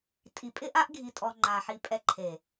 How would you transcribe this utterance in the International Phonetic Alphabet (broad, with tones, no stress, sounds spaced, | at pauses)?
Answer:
tʼ i˨ pʼ ɪ˦ ʔ a˦ ʔ ɡʱ i˧ tʼ ɔ˧ ŋ͡ǃ a˨ ħ i˧ pʼ ɛ˧ ǃʰ e˨